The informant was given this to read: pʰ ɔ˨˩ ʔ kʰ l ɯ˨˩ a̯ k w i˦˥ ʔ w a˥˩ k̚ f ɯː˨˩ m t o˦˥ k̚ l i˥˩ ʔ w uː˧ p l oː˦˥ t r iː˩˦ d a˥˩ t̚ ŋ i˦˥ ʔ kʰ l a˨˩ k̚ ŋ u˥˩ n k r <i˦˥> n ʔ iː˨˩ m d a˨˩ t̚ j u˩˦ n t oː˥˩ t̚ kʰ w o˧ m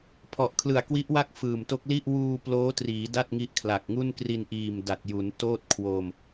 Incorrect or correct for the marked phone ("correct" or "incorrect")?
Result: incorrect